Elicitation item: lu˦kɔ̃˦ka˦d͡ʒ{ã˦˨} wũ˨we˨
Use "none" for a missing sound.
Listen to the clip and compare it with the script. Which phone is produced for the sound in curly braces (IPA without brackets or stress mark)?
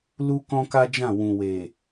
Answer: ã˦˨